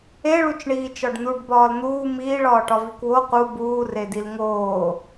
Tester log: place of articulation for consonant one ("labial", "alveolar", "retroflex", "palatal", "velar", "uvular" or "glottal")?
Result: retroflex